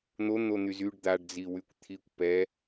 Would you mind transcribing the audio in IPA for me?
n̪ o n̪ o n̪ y z y ɖ d̪ a ɖ d͡z i w y kʷ t̪ʰ i kʷ p ɛ

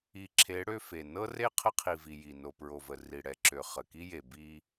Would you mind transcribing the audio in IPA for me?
i˨ ǁʰ e˨˦ ɽ ø˦ f e˨ n ɤ˦ r e˦ qʰ ə˦ qʰ i˨ v i˨ j i˨ n o˨ p ɹ o˨ v ə˨ r i˨ ɽ ɛ˨ ǁ ø˨ χ ə˨ k i˦ j e˨ b i˦

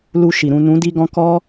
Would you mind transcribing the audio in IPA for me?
l u˧ ʃ i˨ ɾ ũ˨ n ũ˨˦ d i˧ ɡ ɔ̃˧ k ɔ˦

